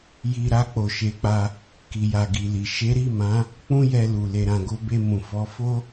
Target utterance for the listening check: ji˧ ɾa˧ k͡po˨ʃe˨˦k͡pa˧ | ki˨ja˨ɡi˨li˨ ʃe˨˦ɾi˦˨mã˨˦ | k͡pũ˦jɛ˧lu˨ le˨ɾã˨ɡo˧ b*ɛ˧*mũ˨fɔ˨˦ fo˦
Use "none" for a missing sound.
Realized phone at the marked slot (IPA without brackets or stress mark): e˧